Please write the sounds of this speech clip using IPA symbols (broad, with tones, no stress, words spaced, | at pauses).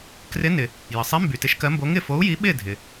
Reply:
krɪ˨˥ nɪ˩ | jə˩sˤi˨˥mby˩ tɪ˨˥ʃkɜ˨˥mbo˨˥ ŋɪ˥˩fo˨˥u̯ji˨˥ ɓɪ˥˩ dʱɪ˩